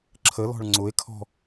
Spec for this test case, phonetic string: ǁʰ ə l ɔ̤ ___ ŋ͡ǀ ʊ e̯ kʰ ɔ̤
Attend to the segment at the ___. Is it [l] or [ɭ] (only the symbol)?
ɭ